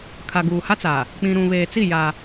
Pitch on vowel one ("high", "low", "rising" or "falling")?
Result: low